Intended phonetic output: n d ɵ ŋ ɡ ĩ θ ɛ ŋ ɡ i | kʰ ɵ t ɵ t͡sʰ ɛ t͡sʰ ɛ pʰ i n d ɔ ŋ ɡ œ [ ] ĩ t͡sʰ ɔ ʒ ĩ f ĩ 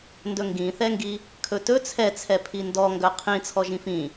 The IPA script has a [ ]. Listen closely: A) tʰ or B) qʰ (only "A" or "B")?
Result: B